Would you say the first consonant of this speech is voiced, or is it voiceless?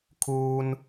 voiceless